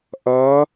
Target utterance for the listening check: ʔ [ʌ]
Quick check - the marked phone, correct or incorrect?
correct